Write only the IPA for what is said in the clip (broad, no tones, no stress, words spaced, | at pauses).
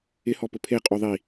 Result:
ɪhɔpʊ pʰe qʼuðˤi